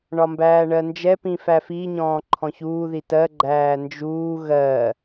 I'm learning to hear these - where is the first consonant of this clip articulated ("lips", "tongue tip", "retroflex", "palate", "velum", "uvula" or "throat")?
retroflex